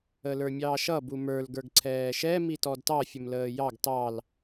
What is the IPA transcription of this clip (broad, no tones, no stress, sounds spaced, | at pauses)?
ə l ə˞ mʲ ɑː ʃ ʌ b u m ə˞ l ɡ ə˞ ɡ ǀʰ ɛː ʃ ɛ m i t ɔ d t ɑ fʲ ə m l əː j ɑ ɡ t ɑ l